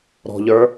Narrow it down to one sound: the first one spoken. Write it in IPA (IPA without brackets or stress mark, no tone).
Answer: ɾ